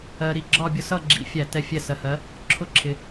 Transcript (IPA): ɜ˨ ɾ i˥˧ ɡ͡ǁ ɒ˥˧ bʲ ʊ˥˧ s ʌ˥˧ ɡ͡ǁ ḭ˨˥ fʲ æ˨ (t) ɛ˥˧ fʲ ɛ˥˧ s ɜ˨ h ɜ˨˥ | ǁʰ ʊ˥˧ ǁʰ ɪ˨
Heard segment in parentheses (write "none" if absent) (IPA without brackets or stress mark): t